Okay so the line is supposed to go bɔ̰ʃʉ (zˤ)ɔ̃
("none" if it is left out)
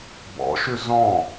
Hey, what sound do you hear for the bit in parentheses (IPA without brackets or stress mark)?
z